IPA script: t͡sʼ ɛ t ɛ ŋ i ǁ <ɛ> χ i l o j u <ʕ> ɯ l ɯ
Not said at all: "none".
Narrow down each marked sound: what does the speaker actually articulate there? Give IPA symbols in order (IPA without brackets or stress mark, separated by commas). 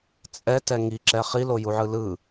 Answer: ɛ, ʕ